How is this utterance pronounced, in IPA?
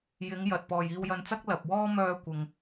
j ɪ˨˧ ŋ j ɐ˨ t̚ p ɔː˨ j iː˧ w j ɐ˧ n t͡s ɐ˥ k̚ l ɐ˨ p̚ w ɔː˥ m œː˧ kʷ ɪ˨ ŋ

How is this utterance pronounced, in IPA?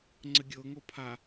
ŋ͡ǀ ə ɡʲ ɤ ŋ o pʰ a

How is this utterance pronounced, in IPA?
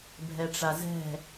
bʱ ɛ ʈ͡ʂ a z ɛ̤

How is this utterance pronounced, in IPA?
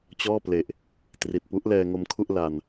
t͡ɕ ɔː˥˩ p l e˨˩ ʔ | t r i˨˩ t̚ p u˦˥ ʔ l ɛː˧ ŋ o˧ m kʰ u˥˩ ʔ l a˧ n

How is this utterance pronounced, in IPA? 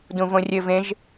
d ũ v õ rʲ ɘ v ẽ ʒ

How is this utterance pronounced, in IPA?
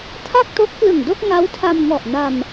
tʰ a˥˩ k̚ t o˦˥ k̚ p l ɯ˨˩ ŋ d o˥˩ k̚ ŋ a˦˥ w tʰ a˧ m ŋ ɔ˨˩ ʔ n a˧ m

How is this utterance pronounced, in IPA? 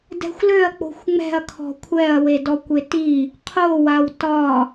d ɛ̤ xʷ l ø ɐ̯ k͡p o̤ xʷ ŋ͡m ɛ̤ ɐ̯ kʰ ɔ̤ kʷʰ ɛ ɐ̯ w e d ɔ kʷ e t i | qʰ o w a w t ɒ

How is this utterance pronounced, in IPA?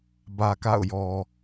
b ä˨ k a̰˦˨ ʊ̯ j ɔ˨

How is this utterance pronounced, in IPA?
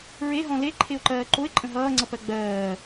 ɹ e ɦ ɔ̃ l e ǃʰ e ʊ̯ ǃ ɜː ǃ o ɪ̯ ǃʼ ə̃ ɦ ʌː ŋ͡ǀ ʌ p ɜ ɡ͡b ɜː

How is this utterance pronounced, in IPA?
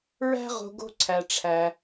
ɹ æ̤˥ ʁ o̤˧ ɡ o̤˧ ǀʰ æ˩ ʈ͡ʂʰ æ˩

